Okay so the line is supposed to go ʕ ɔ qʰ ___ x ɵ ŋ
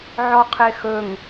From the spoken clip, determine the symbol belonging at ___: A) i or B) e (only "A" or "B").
B